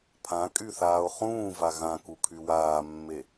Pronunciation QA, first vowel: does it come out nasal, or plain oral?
nasal